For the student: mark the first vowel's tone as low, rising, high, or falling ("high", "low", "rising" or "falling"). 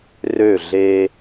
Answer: falling